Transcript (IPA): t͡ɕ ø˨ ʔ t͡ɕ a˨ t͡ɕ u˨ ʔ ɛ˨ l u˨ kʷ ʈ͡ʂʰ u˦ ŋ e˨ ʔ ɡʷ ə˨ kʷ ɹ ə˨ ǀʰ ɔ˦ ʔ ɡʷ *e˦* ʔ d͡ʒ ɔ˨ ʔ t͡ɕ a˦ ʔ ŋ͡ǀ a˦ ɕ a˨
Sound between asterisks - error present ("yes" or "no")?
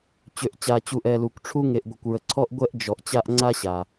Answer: yes